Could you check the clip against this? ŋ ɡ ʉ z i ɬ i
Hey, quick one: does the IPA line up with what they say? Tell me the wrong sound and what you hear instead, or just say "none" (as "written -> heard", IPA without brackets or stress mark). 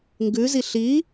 none